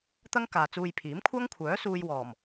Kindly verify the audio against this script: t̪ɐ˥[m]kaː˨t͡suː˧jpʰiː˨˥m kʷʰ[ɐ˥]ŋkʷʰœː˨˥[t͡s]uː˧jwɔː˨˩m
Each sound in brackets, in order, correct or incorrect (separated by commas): incorrect, correct, incorrect